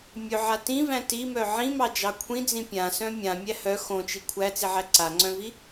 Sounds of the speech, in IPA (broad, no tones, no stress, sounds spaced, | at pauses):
mʲ ɵ ʕ a t ĩ v æ̃ t i m œ ʕ ĩ m ɑ d͡ʒ ɑ kʷʰ ĩ d͡z ĩ pʲ ã s œ̃ mʲ ã mʲ æ h œ x õ t͡ʃ i kʷʰ æ t͡s i ʕ æ ǀ a ŋ͡ǀ œ̃ v i